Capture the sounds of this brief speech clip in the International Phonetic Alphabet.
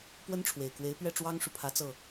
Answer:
pwə˥nʈ͡ʂʰwe˨˩ɪ̯kwe˧˥ɪ̯ pɥɛ˥˩ʈ͡ʂwɑ˥ŋʂu˨ pʰä˧˥t͡sɤ˥˩

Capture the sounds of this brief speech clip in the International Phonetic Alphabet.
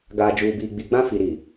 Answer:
ɡaː˨d͡ʒuː˨biː˨ ɡ͡bi˨ɡ͡bã˦ fi˨ ɾi˨

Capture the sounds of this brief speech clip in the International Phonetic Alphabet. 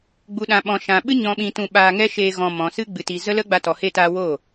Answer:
ɡ͡bu˨ɗã˨ɓɔ̃˨ ʃã˨ɓɨ˦ ɲɔ̃˧ɓĩ˧tũ˧ ɓaː˧ŋɛ˦ʃeː˧ ɣɔ̃˧ mɔ̃˨sɨ˧ ɡ͡bɨ˨ti˨zə˦lə˦ ɡ͡ba˧tɔ˨he˧taː˧ wo˦˨

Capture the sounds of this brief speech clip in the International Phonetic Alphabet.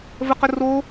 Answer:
vəqə ro

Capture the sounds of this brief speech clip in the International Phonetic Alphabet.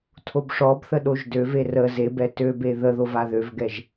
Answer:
tʰobʂɔbθə ɗoʒdøve rə zebɛ tøbe ðəðo vaðøvɡɛʒ

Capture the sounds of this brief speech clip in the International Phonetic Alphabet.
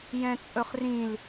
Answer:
jɛ̃t͡sʼɵχrĩl

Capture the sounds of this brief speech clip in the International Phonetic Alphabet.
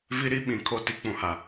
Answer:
vi˦ɾi˦ɓĩ˨ kʰo˦˨ti˦k͡pũ˨ha˨

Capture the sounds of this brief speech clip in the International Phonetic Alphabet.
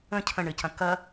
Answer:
ə̃ cʰə̃ɳɘcɐ̃ kɐ

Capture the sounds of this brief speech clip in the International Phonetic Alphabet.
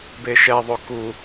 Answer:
beʃɛðˤo ku

